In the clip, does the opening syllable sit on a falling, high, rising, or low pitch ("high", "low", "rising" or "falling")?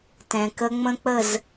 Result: low